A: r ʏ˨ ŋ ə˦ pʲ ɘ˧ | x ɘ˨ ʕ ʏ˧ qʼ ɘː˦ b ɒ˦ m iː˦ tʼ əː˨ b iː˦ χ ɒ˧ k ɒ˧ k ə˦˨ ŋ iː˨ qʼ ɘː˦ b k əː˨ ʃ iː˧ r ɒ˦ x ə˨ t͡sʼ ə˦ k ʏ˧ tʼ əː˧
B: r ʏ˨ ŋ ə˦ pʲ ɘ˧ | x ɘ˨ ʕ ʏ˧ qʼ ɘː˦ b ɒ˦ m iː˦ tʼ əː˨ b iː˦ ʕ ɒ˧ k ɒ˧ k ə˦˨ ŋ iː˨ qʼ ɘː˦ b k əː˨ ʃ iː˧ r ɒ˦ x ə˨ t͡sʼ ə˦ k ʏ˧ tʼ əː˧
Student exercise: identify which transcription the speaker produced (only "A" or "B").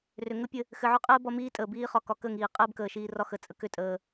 A